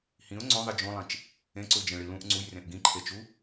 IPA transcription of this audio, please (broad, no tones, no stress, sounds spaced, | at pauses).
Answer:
h ĩ ʊ̯ ŋ͡ǀ õ ðˤ i d͡ʒ õ lˠ ĩ t͡ʃ | ẽ ǀ u l d͡ʒ ẽ ɭ i l ũ ʔ ŋ͡ǀ u j r ẽ ʔ ɡ ĩ ǃʰ e t͡ʃ u